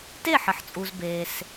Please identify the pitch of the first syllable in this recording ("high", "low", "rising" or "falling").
falling